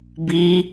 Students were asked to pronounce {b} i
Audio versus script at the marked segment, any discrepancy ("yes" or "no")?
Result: no